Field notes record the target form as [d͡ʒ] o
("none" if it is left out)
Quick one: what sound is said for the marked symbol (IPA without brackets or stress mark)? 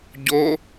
ɟ